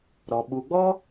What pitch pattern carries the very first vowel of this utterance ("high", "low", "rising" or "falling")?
low